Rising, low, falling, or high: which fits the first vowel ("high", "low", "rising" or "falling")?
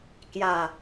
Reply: low